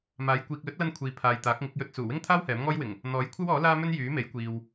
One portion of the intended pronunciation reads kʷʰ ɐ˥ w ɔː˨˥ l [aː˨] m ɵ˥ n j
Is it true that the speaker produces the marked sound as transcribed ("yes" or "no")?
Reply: no